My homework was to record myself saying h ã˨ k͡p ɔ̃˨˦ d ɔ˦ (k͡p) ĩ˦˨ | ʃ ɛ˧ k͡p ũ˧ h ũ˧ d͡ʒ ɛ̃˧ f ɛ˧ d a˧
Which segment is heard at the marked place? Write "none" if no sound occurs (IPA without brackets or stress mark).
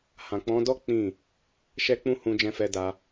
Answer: k͡p